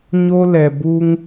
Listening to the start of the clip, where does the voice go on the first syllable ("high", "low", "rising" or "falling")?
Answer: high